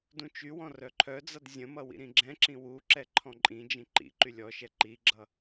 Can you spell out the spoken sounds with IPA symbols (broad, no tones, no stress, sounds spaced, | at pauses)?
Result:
d ũ t͡ʃ y w ɔ̃ r œ ǃʰ œ d͡z ʌ d zʲ ə̃ m ʌ w ḭ ɾ ĩ ɡ͡ǁ ɛ̃ ǁ ĩ w u ǁ ɛ ǃʰ ɔ̃ ǃʼ ĩ d͡ʒ ĩ ǃ ḭ ǃ y lʲ ɔ ʃ ɛ ǃ i ɡ͡ǁ ʌ